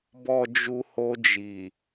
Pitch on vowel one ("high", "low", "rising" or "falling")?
low